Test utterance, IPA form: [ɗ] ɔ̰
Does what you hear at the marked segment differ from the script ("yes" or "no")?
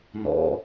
yes